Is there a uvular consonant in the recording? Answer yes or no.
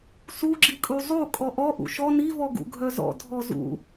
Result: no